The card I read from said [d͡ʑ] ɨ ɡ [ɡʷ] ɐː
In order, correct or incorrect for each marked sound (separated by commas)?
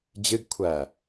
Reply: correct, incorrect